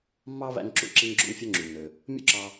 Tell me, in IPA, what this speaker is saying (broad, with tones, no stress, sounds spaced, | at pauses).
mː ɑ˥ β æ̰˧ ŋ ǁ ṵ˩ ǁ i˧ ŋ ɡ͡ǁ o̰˧ ŋ fʲ o˧ ŋ͡ǁ y˩ nː ø˩ | mʲ o̰˥ ǁ ɑ˧